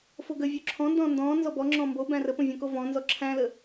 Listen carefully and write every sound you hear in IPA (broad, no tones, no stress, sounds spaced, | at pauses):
f o ɡ ə vʲ o ǁʰ ɔ̃ n d ɔ̃ː n d ɔ̃ː n z ɔ b ɔ ŋ͡ǁ ɔ̃ː m b o b æ̃ r ə p õ vʲ õ k o v ɔ̃ː n z ɔ ǁʰ æ̃ l ə